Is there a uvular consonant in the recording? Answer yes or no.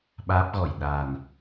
no